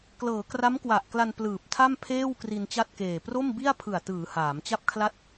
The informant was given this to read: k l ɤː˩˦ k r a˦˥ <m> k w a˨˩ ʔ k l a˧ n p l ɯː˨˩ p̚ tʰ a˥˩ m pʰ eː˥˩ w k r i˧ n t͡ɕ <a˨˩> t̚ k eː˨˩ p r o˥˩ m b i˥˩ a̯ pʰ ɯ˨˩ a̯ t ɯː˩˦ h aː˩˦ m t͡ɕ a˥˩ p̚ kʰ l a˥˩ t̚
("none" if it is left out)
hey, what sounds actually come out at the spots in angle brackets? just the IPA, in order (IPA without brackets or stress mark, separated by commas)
m, a˥˩